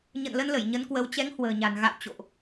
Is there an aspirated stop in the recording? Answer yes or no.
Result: no